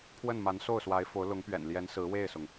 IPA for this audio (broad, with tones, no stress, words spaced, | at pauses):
pʰwə˥˩nma˧˥n so˥˩ʊ̯swa˧˥ɪ̯fo˧˥ʊ̯ lʊ˧˥ŋpɥɛ̰˨˩nljɛ˧˥n sɹ̩˧˥we˥˩ɪ̯sʊ˩ŋ